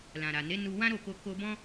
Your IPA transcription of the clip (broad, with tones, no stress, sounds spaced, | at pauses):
l ã˨ ɾ a˨ n e˨˦ n u˧ w ã˦ ɾ o˦˨ k o˧ k o˧ b ɔ̃˦